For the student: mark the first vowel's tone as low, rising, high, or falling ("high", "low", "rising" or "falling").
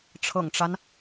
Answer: low